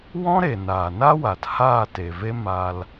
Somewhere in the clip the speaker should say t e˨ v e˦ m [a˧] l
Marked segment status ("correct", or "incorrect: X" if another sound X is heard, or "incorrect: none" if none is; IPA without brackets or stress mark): correct